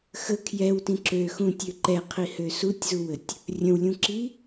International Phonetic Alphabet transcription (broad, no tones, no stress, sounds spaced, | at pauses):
x ə kʰ j ɛ w t ĩ ǁ ø x ũ tʲ ø ǃ ɛ qʰ i h ø s u tʲ z u w ə tʲ | rʲ ə̃ w lʲ ũ ǁ i